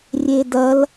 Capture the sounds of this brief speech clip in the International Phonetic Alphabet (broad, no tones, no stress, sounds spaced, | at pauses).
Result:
rʲ e d ɐ l